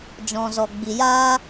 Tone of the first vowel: low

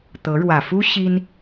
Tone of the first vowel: rising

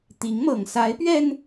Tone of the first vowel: rising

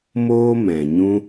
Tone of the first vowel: high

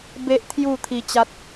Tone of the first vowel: high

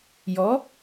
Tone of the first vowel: rising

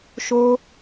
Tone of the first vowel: high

